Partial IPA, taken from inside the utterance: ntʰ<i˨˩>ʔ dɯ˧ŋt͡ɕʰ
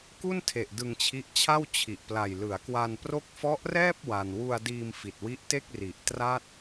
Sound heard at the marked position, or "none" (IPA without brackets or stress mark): e˨˩